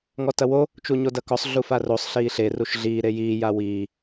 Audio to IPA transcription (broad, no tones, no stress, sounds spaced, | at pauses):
ŋ ɔ t ɐ w o | t͡ʃ u ɲ o d ɐ k ɔ sˤ ɮ u f a r o sˤ ɬ iː ɬ e r u ʃ ɮ iː ɾ e j iː j a w iː